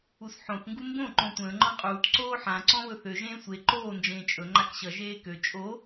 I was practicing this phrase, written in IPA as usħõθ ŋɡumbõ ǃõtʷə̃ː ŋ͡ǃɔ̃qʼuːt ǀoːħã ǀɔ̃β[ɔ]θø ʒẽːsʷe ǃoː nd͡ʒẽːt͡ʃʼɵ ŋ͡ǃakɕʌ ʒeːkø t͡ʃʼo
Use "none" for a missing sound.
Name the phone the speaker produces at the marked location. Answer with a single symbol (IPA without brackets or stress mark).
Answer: ɵ